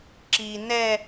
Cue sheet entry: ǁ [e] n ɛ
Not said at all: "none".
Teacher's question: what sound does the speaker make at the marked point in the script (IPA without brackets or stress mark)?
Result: i